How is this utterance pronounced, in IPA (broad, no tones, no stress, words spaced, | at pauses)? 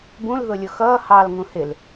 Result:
bũl ðʊlʲʊxʌː hɑl ŋũhɪl